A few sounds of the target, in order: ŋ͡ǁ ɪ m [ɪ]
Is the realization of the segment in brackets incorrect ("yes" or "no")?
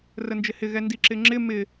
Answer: no